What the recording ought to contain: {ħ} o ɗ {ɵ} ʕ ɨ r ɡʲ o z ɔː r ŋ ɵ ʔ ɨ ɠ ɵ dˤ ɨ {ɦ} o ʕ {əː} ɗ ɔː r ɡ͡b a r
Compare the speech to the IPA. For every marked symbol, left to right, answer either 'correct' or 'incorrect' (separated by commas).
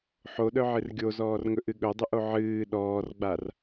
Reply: correct, incorrect, incorrect, incorrect